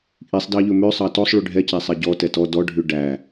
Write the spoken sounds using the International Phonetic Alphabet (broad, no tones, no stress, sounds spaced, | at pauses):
ʔ i sˤ d ɑ ʎ ɵ m ø sˤ ɑ t ɔ sˤ ɭ y ɖʱ ɛ c æ sˤ ɛ ɟ ɔ t ɛ t ɔ d ɔ ɖʱ ʉ ɖ æ